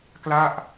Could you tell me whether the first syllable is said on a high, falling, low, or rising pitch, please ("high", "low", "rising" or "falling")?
falling